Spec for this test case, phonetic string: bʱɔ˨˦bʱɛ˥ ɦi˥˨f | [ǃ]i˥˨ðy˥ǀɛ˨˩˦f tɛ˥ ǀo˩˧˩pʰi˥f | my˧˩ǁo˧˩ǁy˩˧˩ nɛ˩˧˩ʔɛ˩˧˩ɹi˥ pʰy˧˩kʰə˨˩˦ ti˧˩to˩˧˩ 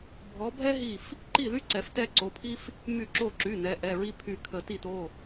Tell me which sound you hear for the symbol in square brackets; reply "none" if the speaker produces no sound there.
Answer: ǃ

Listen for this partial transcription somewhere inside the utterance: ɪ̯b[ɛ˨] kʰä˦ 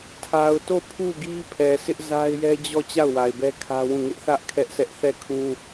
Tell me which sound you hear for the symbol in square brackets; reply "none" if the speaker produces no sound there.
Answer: ɛ˦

